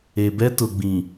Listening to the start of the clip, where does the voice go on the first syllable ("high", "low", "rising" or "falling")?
low